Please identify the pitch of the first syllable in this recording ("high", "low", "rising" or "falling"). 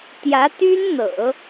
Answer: rising